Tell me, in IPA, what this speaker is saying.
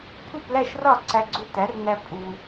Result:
pʰu˥˨plæ˥˨ʃrɒ˥˨ ǀæ˦ɡ͡ǀu˦tæ˨˥rnæ˦ pʼu˨

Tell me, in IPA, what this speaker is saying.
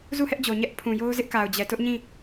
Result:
zu˦˨hɛ˦ʔd͡ʑo˨ ɲɛ˦ʔ pʰũ˨jo˦ʊ̯zɪ˦ʔ ka˨ʊ̯d͡ʑɛ˨tʊ˦ʔɲĩ˦˨

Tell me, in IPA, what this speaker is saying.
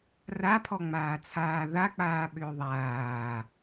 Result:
rapʰɔŋ͡maː t͡sʰaːðak͡paːɓʏː ðˤaː

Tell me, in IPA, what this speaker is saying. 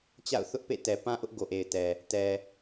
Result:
t͡ɕa̰˦˨ʊ̯θʊ˦ʔpḛ˦˨ tɛ˨pã˦ʔʊ˦ʔ ɡo˨ʔe˨ɪ̯tɛ˨ | tɛ˨

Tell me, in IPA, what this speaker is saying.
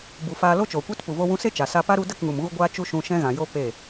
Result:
bu˨faː˧ lo˦t͡ʃoː˨kʷe˦t pu˨vo˧wũ˧se˦ t͡ʃa˨sa˧pa˦ ɾu˧ də˦˨kŋu˨m ɣu˧ɡʷaː˧ t͡ʃu˦ʃũ˧ ʃɛ̃˦ɣã˨jo˦ pe˦˨

